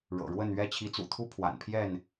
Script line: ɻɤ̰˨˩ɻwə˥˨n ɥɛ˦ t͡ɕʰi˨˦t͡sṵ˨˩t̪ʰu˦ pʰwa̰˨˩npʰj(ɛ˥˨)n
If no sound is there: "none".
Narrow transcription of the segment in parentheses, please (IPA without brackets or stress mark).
ɛ˥˨